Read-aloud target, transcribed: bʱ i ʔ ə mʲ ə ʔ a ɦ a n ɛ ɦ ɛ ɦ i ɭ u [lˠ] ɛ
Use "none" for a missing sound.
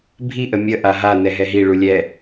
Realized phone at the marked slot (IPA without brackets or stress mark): lʲ